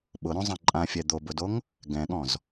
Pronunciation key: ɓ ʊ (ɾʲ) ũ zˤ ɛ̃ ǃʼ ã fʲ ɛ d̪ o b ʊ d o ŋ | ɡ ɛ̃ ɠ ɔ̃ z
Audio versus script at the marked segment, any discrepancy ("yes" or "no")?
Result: yes